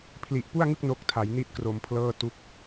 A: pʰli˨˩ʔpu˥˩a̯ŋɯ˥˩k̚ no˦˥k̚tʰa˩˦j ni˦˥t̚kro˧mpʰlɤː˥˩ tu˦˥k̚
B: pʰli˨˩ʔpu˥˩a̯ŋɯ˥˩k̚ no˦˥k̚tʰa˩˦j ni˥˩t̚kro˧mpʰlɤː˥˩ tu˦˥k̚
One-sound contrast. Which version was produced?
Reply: B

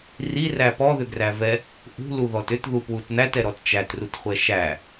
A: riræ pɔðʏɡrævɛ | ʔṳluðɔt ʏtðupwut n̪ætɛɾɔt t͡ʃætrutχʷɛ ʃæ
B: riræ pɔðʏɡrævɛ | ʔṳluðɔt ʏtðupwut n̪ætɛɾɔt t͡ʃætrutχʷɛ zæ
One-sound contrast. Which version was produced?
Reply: A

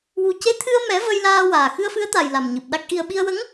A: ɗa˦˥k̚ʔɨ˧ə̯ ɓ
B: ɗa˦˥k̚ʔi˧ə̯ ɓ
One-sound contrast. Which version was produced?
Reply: B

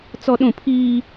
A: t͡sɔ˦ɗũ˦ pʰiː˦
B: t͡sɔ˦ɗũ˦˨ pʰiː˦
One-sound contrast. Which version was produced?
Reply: B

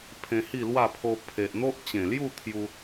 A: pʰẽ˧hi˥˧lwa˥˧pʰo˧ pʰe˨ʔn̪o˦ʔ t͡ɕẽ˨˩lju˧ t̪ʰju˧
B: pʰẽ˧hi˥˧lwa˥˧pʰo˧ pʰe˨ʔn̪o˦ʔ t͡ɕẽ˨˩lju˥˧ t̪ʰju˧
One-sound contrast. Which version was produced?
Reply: B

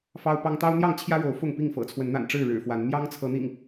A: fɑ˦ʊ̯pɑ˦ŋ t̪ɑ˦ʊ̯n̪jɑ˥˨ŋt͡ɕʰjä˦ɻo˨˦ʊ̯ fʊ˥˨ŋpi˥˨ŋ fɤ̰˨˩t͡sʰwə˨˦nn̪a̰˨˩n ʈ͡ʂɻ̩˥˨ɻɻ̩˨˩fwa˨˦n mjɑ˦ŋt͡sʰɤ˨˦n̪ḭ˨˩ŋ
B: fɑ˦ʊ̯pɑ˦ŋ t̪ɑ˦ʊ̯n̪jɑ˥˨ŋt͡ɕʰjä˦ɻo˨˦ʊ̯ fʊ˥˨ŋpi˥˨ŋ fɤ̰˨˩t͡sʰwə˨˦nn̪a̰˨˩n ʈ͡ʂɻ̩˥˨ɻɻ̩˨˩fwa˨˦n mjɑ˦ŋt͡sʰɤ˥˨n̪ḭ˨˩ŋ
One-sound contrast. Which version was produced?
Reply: A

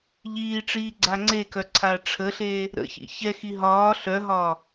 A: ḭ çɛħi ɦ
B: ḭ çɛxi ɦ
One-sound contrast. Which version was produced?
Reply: B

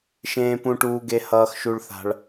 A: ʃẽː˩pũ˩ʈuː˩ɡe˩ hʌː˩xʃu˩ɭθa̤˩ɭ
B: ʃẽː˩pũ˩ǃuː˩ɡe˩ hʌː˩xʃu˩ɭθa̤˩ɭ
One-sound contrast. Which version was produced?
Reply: A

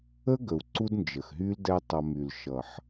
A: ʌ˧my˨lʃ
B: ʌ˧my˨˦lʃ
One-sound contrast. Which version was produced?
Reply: A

